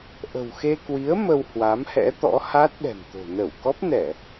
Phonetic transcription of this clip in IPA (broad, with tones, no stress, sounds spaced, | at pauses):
ʔ ə̤˨˩ w x e˧ k w i˨˦ ə̯ m ə˧ w h w a˨˦ m h ɛ̰˧˥ t̪ ɔ̰˧˥ h a˦˥ t̚ ɗ ɛ̤˨˩ m t̪ o̤˨˩ n ə˧˩ w k ɔ˦˥ p̚ n ɛ˧˩˨